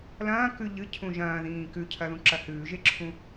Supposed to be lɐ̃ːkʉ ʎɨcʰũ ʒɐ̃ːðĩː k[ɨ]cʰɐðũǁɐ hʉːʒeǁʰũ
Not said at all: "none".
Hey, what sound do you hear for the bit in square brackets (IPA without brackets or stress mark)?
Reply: ʉ